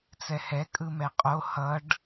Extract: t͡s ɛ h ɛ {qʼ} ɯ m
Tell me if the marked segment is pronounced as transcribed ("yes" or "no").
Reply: no